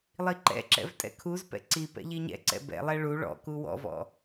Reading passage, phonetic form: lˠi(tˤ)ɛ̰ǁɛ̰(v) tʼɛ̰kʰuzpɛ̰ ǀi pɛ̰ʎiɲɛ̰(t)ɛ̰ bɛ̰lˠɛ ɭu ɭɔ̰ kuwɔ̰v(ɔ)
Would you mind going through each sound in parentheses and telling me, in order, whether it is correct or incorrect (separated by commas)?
incorrect, correct, incorrect, incorrect